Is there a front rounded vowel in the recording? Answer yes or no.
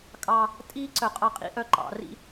yes